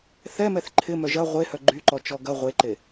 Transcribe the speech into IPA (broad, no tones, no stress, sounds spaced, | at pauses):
θ ɛ m ɛ θ ǃʰ ɪ m œ ʒ ɐ ʁʷ e h œ ɡ͡ǃ y ǃ ɔ t͡ʃ ɔ ɡ ɐ ʁʷ e ǃ e